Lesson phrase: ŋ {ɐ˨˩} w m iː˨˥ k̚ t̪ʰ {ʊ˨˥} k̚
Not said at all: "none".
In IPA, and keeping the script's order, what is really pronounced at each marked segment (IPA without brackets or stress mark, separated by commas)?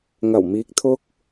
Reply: ɐ˨˩, ʊ˧